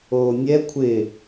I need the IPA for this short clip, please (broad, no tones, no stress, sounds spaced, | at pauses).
oː nʲ ɛ kʷʰ ɪ